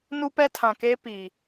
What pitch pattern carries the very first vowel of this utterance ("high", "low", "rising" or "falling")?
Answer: high